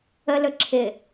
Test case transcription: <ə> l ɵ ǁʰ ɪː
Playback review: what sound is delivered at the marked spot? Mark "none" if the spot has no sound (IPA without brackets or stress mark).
ə